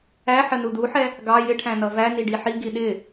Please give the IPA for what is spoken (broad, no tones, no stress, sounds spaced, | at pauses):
æ ħ ə n u d u ħ ɛ | ɡ ɑ j ɪ ʈʰ æ̃ n ʌ v æ n i ɖ i ħ i ɡ i ɗ ɪ